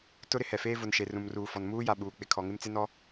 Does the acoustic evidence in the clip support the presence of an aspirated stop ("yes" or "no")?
yes